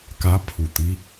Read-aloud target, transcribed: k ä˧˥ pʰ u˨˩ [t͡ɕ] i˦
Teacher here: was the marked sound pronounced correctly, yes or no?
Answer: no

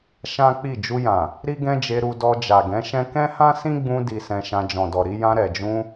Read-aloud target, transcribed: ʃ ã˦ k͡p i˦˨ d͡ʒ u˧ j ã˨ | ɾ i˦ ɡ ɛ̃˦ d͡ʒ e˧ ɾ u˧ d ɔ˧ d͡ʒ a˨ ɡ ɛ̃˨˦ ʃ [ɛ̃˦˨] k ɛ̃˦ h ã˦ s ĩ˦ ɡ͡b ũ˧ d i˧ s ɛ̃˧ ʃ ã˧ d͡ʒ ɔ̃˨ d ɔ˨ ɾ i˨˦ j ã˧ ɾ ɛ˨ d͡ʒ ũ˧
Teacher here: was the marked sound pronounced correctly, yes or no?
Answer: no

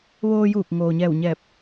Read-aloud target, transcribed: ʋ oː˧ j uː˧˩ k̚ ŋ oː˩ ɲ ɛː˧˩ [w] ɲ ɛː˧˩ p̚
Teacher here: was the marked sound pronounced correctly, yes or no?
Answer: yes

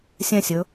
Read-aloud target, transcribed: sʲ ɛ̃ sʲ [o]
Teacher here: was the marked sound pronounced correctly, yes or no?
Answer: no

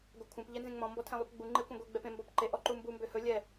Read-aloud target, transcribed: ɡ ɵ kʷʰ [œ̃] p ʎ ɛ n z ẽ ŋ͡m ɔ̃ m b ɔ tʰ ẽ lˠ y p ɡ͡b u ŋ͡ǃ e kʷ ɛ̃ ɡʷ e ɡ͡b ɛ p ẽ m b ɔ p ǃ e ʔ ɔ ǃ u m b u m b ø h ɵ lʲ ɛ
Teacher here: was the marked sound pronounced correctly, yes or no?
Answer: no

